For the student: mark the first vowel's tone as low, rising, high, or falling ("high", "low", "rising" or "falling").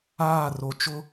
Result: falling